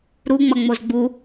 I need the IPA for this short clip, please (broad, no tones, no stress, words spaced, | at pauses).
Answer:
ɾuŋ͡mʌ ŋ͡mozɡ͡bu